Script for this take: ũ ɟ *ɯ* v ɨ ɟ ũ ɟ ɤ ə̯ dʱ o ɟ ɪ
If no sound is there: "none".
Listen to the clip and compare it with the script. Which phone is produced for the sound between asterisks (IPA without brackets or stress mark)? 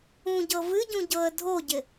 ɤ